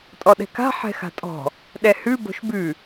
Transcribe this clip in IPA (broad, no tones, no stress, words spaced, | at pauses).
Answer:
tʼɔɗɛ̤ka̤ ħɛ̤xa̤tʼɔ̤ | ɗɛhʉ bo̤ʃbʉ